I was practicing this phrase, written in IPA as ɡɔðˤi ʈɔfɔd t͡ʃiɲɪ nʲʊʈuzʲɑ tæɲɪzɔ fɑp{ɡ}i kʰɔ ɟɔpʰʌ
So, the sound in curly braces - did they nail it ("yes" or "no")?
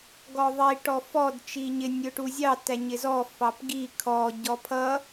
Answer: yes